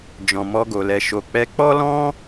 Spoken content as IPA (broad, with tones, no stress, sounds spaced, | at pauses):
d͡ʒ ɔ̃˨ m ɔ˧ ɡ o˨ l ɛ˨ ʃ o˨ k͡p ɛ˧ k͡p ɔ˦ l ɔ̃˦